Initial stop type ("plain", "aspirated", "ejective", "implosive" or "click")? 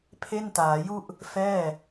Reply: aspirated